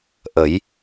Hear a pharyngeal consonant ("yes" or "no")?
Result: no